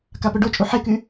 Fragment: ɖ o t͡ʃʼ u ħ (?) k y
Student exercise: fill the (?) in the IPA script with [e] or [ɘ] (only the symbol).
e